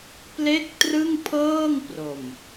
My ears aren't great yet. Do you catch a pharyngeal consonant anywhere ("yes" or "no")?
no